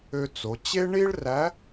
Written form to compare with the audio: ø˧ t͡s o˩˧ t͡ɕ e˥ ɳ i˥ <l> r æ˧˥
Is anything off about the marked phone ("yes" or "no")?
yes